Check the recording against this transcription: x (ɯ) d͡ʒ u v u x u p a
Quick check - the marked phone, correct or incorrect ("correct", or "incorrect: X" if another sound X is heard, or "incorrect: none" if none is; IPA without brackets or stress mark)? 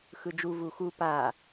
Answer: correct